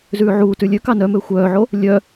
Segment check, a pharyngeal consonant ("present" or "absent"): present